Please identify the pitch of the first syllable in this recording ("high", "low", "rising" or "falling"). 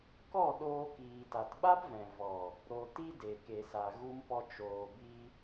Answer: falling